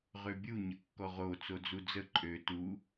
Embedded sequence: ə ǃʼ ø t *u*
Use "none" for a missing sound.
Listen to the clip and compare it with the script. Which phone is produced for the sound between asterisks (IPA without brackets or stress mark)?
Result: u